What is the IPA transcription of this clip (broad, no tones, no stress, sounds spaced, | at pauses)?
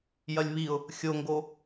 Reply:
j ɐ lʲ β i ʊ̯ | xʲ o ŋ ɡ o